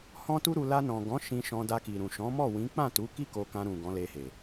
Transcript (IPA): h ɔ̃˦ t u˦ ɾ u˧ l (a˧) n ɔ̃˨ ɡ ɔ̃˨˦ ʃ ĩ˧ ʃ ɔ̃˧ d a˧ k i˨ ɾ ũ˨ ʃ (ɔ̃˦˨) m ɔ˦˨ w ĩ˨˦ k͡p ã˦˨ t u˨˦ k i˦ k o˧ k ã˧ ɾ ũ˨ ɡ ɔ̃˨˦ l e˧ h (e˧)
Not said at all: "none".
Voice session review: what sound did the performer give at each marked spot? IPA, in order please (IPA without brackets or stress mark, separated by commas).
a˧, ɔ̃˨˦, e˨